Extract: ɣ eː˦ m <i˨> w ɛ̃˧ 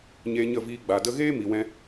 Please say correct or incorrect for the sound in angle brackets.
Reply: correct